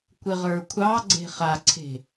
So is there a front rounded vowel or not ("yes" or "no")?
no